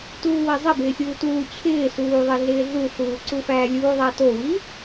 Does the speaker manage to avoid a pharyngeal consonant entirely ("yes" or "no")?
yes